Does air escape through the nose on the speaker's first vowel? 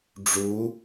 no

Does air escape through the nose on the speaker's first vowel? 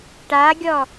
no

